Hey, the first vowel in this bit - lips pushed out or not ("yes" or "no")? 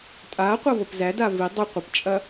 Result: no